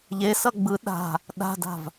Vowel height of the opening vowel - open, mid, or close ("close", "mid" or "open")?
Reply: mid